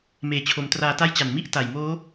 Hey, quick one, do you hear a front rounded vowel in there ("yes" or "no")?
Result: no